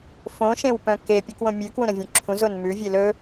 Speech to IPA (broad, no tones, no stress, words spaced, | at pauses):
fõʃẽwpœ̃ kepʲukwõ mʲʉkwũɾœ̃vʲũ ǁʰũzon mʉvʲe lɵ